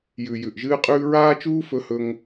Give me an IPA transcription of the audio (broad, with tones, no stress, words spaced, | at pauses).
jʉ˨ jʉ˨ʔʒɨː˦qʼʉː˦ ɹaː˦t͡ʃuː˦fɵ˧hɵ˧ŋ